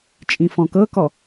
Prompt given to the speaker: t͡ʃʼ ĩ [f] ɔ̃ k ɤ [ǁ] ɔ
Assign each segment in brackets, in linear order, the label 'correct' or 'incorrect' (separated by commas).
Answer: correct, incorrect